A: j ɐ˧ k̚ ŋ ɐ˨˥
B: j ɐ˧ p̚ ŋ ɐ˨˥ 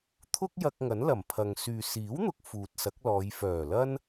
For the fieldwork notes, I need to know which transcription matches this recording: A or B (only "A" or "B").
A